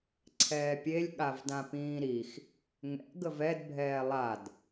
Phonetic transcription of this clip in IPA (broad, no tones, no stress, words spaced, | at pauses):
ǀʰɛːpʲelʲ ɠavdãpĩːɾix | ŋɛ̰ɡəv ɛdbʱɛː lˠad